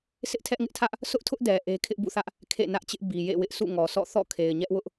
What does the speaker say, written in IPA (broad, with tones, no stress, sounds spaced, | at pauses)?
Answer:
s ɪ˦ ʔ tʰ ɛ˦ ʔ ŋ ɪ˦ ʔ tʰ ä˦ ʔ | sʰ ʊ˦ ʔ tʰ ʊ˦ ʔ d ɛ˨ ʔ e˦ kʰ ɪ˦ ʔ b ṵ˦˨ θ ä˦ ʔ | kʰ ḛ˦˨ n ä˦ ʔ t͡ɕ ɪ˦ ʔ b i˨ j ḛ˦˨ w ɪ˦ ʔ s ṵ˦˨ ŋ ɔ˨ s ɔ̰˦˨ θ ɔ̰˦˨ kʰ e˨ ɪ̯ ɲ ɛ˦ ʔ w ʊ˦ ʔ